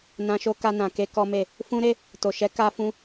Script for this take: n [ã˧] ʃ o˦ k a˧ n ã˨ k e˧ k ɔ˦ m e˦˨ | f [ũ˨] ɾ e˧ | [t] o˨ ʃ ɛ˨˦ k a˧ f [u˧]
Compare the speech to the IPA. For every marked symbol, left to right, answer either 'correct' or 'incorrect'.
correct, incorrect, correct, incorrect

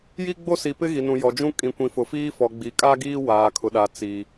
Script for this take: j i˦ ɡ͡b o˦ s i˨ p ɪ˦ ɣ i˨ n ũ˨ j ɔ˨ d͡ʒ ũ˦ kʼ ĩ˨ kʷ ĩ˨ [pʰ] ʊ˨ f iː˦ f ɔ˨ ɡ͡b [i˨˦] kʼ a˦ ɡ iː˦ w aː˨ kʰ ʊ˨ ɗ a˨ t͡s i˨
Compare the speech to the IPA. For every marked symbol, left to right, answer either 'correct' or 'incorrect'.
incorrect, correct

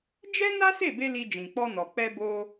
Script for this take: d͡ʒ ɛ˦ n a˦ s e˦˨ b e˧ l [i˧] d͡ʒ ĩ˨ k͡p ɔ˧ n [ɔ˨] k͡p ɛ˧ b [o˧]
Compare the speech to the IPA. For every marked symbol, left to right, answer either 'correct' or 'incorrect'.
correct, correct, correct

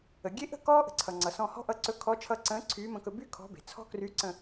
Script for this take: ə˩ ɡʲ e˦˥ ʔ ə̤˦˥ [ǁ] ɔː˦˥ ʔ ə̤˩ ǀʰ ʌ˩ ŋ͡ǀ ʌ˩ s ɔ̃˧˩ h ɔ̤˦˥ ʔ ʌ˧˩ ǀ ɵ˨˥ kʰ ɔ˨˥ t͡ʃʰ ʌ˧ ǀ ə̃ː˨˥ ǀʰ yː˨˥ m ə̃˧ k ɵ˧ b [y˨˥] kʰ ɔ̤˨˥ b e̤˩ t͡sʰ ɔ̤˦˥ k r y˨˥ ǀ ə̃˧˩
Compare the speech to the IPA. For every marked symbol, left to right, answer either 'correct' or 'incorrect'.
incorrect, incorrect

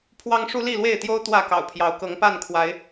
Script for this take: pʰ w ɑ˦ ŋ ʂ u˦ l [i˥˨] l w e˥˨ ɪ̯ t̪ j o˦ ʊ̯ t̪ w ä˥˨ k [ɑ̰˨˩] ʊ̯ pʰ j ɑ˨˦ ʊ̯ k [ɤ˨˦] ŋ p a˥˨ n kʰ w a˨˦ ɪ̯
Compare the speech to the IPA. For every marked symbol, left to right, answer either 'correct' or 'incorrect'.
correct, correct, correct

